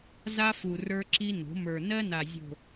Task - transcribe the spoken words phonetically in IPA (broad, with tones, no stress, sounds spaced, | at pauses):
z a˦ f u˨ r ə˞˦ ǁ i˦ n o̤˨˦ m ə˞˨ n ɜ˦ n a˨ zʲ o̤˨